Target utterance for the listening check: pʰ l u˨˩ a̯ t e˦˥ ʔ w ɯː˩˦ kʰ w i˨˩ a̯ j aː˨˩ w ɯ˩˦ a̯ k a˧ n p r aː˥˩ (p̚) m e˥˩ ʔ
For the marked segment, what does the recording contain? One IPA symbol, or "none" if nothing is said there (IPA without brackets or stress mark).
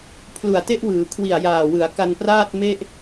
t̚